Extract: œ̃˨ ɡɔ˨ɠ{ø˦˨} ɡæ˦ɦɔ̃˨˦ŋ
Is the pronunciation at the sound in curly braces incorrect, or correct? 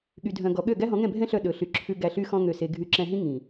correct